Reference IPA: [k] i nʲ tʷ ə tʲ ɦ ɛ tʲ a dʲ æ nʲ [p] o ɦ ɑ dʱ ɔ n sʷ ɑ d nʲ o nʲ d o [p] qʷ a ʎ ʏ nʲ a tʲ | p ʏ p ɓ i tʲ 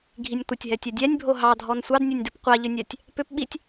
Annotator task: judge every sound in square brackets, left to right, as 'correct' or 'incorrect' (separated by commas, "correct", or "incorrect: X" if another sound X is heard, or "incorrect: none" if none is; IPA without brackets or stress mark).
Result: incorrect: ɡʱ, incorrect: bʱ, correct